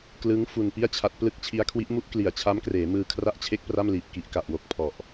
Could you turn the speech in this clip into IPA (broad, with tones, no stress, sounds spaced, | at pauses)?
k l ɯ˦˥ ŋ f u˧ n p i˥˩ a̯ t͡ɕʰ a˦˥ t̚ p l ɯ˥˩ k̚ t͡ɕʰ i˦˥ a̯ kʰ w i˦˥ ʔ m u˥˩ ʔ k l i˨˩ a̯ t͡ɕʰ a˦˥ m k r eː˩˦ m ɯː˧ kʰ r a˥˩ ʔ t͡ɕʰ e˥˩ k̚ p r a˥˩ m l iː˨˩ p̚ k i˨˩ ʔ k a˨˩ ʔ w o˨˩ k̚ pʰ ɔ˨˩ ʔ